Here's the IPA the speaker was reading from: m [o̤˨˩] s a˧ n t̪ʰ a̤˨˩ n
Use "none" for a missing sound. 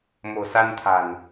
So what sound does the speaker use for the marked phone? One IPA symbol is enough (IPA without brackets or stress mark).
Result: o̤˨˩